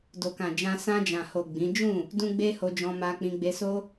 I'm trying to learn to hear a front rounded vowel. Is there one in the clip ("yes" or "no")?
no